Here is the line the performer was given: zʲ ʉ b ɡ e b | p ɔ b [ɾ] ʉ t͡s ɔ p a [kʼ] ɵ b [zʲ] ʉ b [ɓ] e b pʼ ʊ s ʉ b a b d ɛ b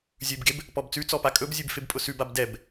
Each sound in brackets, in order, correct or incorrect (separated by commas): incorrect, correct, correct, incorrect